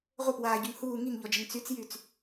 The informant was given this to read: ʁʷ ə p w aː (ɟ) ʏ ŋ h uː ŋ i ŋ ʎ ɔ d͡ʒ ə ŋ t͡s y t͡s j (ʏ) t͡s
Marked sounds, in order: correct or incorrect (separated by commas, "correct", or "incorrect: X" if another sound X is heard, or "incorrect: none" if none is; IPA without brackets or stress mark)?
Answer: correct, incorrect: y